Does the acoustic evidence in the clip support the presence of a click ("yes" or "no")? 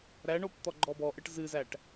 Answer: yes